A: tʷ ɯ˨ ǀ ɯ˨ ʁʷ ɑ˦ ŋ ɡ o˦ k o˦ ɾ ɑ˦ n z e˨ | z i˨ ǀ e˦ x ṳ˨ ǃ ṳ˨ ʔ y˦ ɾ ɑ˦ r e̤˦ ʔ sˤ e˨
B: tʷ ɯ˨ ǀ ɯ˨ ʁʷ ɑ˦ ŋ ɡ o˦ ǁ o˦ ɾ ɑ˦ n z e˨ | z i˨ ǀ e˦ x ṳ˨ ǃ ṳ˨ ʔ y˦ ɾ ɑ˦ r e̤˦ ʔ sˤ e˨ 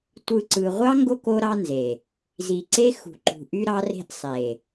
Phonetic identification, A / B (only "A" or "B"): A